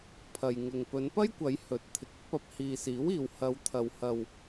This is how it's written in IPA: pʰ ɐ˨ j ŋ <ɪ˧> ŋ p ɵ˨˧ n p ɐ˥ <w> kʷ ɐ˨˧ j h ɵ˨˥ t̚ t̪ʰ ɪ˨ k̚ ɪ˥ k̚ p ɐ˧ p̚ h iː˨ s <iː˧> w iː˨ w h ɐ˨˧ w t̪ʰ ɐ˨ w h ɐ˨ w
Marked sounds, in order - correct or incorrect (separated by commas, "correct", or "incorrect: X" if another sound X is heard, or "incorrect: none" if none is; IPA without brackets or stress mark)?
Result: incorrect: ɪ˨, incorrect: j, incorrect: iː˨˥